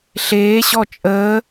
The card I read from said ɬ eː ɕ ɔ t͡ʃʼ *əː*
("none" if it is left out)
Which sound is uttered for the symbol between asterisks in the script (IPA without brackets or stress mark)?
əː